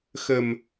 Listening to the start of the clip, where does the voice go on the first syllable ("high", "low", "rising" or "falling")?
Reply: low